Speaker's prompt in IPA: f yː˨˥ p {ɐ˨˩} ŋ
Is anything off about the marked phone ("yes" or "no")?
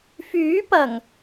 no